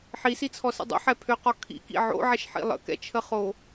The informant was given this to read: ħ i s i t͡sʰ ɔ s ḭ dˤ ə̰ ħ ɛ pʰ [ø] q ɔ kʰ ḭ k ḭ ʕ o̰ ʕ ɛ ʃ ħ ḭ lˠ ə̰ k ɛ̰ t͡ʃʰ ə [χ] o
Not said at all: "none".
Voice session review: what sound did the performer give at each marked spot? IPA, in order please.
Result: ø, χ

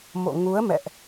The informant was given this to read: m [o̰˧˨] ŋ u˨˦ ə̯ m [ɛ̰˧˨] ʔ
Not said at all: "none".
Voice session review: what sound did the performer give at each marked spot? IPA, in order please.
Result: o̰˧˨, ɛ̰˧˨

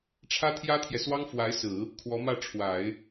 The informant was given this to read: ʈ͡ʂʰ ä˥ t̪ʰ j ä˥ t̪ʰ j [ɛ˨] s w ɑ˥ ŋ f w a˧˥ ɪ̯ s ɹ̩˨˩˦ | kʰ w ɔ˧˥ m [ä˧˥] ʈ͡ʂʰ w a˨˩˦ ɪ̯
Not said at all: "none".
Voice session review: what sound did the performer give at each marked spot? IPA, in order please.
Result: ɛ˨, ä˥˩

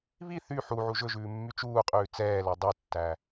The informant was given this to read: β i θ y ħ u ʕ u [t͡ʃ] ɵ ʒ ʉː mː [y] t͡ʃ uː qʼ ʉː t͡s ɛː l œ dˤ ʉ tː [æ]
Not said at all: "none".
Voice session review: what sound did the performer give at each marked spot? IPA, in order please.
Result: ʒ, y, æ

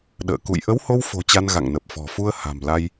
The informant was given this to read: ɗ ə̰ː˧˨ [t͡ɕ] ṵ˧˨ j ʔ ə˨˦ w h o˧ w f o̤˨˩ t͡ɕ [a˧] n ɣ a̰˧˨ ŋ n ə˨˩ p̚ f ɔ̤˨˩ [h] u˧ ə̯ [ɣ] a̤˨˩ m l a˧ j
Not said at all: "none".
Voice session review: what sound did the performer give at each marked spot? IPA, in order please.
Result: k, a˧, f, h

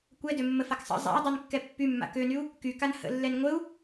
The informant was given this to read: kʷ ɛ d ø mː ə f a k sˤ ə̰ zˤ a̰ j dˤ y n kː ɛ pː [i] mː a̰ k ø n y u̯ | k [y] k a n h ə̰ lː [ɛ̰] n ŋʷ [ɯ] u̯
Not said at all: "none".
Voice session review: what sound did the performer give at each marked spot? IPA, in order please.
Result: y, y, ɛ, ə

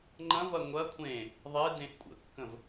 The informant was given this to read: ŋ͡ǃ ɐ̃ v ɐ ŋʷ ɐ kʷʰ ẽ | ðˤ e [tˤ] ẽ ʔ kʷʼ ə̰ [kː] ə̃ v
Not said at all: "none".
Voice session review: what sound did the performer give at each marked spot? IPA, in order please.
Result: d, kː

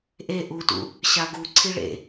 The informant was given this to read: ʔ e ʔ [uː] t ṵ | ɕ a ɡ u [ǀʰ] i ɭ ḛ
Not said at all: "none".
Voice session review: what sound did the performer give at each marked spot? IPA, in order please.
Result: u, ǀʰ

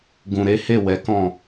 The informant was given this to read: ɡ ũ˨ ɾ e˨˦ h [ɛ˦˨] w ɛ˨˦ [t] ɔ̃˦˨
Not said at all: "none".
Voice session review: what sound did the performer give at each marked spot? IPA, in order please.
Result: e˦˨, k

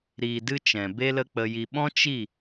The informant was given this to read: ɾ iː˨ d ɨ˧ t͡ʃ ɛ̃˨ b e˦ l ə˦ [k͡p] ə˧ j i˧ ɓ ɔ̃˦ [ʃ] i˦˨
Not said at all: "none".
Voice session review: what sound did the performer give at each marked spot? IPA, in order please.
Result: k͡p, t͡ʃ

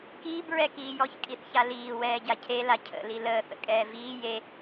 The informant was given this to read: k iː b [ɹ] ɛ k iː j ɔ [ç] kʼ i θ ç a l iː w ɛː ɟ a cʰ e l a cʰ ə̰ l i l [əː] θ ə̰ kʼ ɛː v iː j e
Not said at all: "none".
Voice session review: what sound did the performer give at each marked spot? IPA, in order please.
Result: ɹ, ç, əː

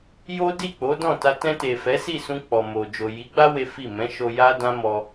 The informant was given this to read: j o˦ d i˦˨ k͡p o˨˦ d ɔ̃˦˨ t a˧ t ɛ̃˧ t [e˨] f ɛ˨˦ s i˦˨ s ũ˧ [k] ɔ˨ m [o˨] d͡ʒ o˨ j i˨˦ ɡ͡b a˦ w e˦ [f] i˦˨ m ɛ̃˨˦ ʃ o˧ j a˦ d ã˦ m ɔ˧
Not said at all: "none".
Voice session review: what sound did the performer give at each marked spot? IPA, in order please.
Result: e˨, k͡p, o˨, f

